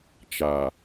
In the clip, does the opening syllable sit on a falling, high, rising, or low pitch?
low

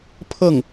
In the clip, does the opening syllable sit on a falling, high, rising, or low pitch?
falling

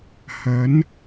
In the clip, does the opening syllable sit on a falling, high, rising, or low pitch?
rising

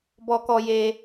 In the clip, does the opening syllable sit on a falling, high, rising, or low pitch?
high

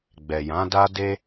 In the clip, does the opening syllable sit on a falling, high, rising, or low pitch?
low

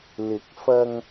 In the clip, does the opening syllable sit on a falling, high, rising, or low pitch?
rising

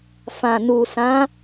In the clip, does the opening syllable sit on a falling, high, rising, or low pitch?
low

